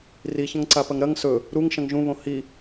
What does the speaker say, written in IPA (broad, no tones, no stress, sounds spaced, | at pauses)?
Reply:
r i ç ɐ̃ ŋ ǀ a p ɐ ŋ ɾ ɐ ŋ s ɵ | ɾ u ŋ ʃ ɐ̃ ŋ ʒ ũ β õ h i